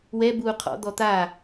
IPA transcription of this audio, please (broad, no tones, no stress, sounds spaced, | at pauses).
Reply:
w ɛ b uː qʰ ɔ̰ d̪ ɔ t̪ a